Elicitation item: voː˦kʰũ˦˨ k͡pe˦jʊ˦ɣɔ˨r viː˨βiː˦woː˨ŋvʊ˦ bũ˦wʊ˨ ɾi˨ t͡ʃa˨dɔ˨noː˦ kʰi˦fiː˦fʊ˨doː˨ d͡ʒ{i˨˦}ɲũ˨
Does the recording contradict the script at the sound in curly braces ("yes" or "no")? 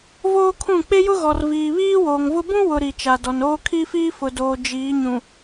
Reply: yes